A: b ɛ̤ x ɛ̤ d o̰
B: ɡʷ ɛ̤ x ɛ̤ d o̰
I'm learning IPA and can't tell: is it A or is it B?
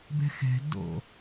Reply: A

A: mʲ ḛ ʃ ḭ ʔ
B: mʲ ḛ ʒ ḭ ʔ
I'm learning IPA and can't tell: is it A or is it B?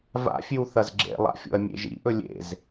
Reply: B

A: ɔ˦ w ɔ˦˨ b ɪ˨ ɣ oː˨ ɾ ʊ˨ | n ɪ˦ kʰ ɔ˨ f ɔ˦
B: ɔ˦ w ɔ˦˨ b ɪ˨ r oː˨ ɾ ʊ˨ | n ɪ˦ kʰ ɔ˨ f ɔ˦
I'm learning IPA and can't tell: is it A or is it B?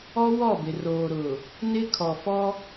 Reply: B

